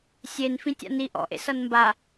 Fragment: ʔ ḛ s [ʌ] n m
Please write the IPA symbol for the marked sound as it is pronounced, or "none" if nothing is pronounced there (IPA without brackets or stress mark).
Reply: ʌ